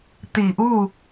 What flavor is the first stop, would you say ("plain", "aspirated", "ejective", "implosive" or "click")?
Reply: plain